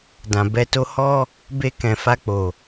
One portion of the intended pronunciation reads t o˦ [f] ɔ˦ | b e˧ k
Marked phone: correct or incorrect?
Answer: incorrect